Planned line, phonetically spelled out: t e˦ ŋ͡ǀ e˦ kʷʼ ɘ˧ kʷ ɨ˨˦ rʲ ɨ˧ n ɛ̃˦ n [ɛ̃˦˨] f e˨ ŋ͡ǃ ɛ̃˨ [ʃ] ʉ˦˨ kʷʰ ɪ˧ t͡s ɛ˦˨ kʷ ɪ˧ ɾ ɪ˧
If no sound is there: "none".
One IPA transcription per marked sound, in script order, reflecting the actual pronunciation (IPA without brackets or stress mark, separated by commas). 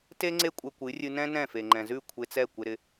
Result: ɛ̃˦˨, z